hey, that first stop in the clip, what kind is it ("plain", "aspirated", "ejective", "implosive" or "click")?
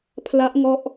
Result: aspirated